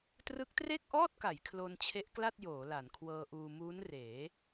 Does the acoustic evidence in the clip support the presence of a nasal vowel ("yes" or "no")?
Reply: no